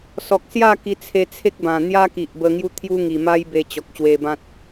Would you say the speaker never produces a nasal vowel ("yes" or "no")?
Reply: no